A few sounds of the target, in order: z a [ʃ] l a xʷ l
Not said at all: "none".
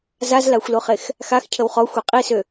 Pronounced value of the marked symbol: z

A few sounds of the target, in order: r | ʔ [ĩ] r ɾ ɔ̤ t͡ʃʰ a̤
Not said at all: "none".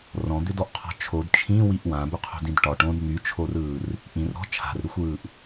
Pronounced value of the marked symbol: ĩ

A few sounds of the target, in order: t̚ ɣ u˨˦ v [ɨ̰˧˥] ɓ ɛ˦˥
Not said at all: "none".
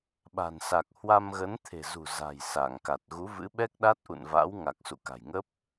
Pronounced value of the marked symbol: ɨ̰˧˥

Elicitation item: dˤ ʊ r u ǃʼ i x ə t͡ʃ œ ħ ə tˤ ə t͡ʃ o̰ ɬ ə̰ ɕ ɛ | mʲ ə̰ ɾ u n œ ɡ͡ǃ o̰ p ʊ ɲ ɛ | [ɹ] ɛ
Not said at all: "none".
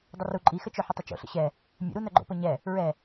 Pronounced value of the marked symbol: ɹ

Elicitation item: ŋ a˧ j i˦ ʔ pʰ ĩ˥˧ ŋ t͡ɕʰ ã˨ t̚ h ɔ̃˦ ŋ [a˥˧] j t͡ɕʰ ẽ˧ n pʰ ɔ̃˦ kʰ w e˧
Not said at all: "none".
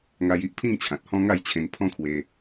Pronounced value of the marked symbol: a˥˧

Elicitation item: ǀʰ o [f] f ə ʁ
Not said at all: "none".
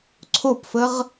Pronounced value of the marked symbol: p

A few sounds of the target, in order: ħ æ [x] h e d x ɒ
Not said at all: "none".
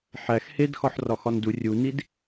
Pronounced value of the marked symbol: x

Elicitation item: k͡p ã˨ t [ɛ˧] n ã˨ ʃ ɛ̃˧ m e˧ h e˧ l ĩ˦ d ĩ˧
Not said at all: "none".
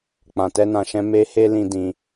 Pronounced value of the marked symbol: ɛ˧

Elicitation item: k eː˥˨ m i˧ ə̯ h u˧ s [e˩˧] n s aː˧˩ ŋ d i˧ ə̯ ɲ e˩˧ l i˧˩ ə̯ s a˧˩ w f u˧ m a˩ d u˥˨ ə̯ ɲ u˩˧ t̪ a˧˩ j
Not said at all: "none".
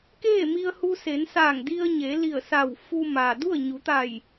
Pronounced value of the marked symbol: e˩˧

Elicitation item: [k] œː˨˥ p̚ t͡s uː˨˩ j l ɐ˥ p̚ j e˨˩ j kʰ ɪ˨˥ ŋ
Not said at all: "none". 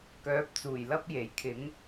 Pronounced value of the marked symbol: k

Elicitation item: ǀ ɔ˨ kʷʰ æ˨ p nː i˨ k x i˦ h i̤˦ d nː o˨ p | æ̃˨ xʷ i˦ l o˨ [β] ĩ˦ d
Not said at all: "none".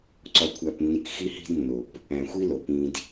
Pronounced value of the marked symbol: p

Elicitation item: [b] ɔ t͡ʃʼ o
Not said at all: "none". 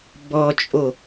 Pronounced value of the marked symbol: b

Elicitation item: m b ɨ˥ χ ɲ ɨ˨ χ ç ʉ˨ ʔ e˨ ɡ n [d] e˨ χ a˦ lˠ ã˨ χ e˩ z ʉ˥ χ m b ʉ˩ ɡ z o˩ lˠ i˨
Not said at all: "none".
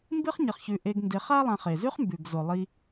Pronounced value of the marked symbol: d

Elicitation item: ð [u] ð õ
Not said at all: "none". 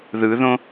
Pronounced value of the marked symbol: ɯ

